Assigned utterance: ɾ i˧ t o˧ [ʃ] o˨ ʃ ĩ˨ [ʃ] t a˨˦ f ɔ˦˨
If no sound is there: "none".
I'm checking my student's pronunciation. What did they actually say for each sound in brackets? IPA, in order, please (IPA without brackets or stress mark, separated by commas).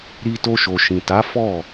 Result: ʃ, none